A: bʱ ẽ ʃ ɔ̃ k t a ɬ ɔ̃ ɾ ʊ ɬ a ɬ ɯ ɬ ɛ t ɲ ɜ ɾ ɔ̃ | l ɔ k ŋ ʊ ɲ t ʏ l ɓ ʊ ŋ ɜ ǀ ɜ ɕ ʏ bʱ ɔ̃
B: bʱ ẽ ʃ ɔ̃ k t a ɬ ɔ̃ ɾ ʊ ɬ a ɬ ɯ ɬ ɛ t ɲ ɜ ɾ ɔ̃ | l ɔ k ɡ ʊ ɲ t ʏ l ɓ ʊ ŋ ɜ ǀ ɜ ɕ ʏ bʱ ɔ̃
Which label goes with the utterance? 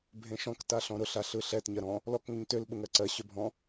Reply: A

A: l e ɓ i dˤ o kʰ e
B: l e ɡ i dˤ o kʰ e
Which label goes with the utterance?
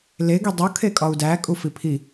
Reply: B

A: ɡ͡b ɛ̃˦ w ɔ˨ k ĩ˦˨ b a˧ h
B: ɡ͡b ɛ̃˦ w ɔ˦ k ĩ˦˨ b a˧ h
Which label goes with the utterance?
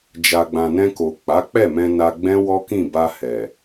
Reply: B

